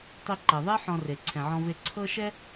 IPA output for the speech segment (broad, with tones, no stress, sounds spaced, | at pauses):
tˤ i˧ ǃ ɛ˩ ðˤ e˥ ħ ɔ̃˧ r e˩ ǀʰ ɛ̃˩ ʕ ɔ̃˧ v e˧ ǀʰ ɤ˥ ʃ ɛ˥